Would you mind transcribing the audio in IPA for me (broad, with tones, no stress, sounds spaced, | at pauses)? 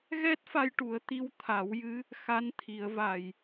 ɣ ɛ˦˥ t̚ f a˧ j ʈ u˨˩˦ ə̯ t̪ i˧˥ w t̪ʰ a˨˩˦ w j ɨ˧˥ | x a˧˥ n t̪ʰ i˨˩˦ ə̯ v a˨˩ j